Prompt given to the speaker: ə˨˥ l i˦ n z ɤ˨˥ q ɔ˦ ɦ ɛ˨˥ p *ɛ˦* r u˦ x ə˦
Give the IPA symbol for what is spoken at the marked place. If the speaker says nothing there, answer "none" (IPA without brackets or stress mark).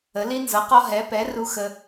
ɛ˨˥